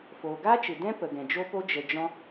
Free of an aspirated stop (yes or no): yes